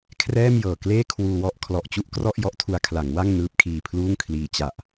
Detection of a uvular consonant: absent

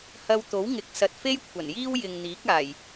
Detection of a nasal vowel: absent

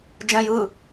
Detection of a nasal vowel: present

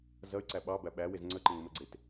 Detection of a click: present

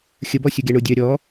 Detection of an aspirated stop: absent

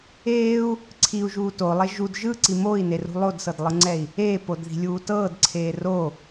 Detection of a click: present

